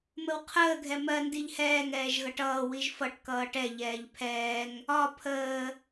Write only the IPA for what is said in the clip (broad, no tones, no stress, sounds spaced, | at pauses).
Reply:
m ə w qʰ əː ɡʱ ɛ m ɜ n d i ʎ h ɛː ŋ ɛː ʒ ɣ ʌ ʈ ʌː w i ʒ f ʌ ʈ k ʌː ʈ ɛ ʎ ɛː ʎ pʰ ɛː ŋ | ɒ pʰ əː